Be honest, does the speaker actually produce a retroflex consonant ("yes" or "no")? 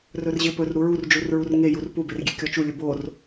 no